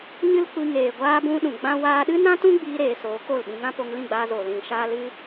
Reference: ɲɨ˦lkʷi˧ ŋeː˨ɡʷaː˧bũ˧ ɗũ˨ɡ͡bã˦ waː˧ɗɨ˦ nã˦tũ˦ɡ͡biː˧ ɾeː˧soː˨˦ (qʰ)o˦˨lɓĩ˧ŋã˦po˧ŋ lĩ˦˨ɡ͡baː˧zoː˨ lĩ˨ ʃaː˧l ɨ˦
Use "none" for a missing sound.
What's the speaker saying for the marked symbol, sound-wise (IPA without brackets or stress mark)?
k